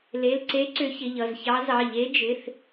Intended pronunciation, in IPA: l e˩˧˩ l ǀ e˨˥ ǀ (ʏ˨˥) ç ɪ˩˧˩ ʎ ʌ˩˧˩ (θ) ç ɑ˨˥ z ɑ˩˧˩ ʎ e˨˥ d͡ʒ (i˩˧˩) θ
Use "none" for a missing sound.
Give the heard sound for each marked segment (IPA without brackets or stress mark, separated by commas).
ʏ˨˥, z, ɪ˩˧˩